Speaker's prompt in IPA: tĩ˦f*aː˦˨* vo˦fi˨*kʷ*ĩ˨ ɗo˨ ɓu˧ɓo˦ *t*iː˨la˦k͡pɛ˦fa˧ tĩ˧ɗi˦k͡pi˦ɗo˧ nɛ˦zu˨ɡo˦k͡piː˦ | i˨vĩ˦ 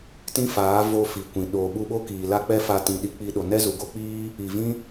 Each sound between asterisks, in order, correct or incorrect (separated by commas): incorrect, correct, incorrect